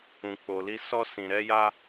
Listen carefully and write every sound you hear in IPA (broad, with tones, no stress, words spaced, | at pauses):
ũ˧ k͡po˧li˦ sɔ˦ sĩ˧ɾɛ˦ja˦